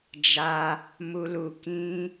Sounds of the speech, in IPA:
d͡ʒ a˧ | m u˧ l u˧ k ĩ˦

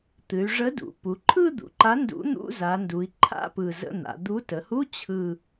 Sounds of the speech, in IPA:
t̪ ɨ˩˧ y̯ ʐ ə˨˥ d ṵ˩˧ p u˩˧ ǃʰ ɯ˥˧ d̪ ṵ˩˧ ǃ a˨˥ n d ṵ˨˥ n̪ ṵ˧˥˧ z a˩˧ n d u˩˧ i̯ ǃʰ a̰˧˥˧ p ɯ˨˩ z ə̰˧˥˧ n̪ a̰˩˧ d̪ u˨˥ t ə˩˧ h u˧˥˧ t͡ɕʰ ɯ˨˩

